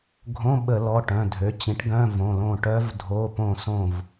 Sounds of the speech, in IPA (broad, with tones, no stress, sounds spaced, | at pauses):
ɡʱ õ˧˥˧ ɓ ə˧˩˧ l ɔ˩˧˩ ʈ œ̃˩˧˩ dʱ ø˩˥ t͡ɕ ĩ˩˥ ʈ ɡ œ̃˧˥˧ v õ˩˧˩ l õ˥˨ ʈ œ˦˥ v dʱ o˧˥˧ p õ˥˨ s õ˥˨ v